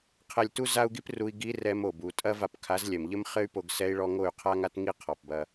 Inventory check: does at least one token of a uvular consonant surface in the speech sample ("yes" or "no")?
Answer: yes